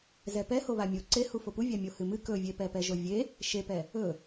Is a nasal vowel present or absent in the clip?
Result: absent